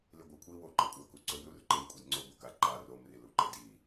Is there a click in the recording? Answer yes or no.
yes